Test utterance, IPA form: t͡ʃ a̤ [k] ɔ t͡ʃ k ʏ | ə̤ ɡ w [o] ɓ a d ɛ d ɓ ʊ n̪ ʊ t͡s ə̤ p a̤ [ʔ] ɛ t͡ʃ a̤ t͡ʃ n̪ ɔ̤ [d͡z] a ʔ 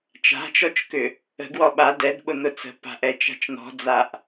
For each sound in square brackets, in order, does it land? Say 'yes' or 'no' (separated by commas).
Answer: no, no, yes, yes